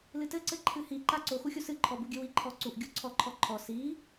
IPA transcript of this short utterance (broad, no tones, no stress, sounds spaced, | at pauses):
l ɨ t ɘ ǀ ɘ ǃʰ ɨ h i ǃ a ǀ o x u xʲ u s ɨ ǃʰ ɔ b u ɡʲ ɘ w i ǃʰ ɔ ǀ u ʔ ɡʲ o ǀʰ ɔ ǃʰ ɔ ǃʰ ɔ s i